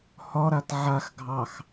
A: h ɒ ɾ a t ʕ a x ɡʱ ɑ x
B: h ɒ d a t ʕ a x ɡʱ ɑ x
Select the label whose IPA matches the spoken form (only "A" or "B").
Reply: A